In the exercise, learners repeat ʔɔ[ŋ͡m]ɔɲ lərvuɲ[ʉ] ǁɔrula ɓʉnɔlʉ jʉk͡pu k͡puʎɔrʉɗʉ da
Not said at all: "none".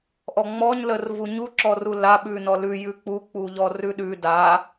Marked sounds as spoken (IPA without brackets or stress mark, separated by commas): ŋ͡m, u